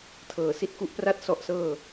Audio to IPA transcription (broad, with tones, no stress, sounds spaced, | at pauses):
tʰ ɤː˨˩ s i˦˥ t̚ k u˦˥ ʔ p r a˥˩ t̚ s ɔ˦˥ ʔ s ɤː˥˩